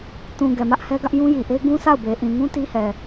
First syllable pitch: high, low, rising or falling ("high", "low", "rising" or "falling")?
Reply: low